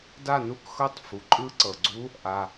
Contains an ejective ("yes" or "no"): yes